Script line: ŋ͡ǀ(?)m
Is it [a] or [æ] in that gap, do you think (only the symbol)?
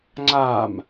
a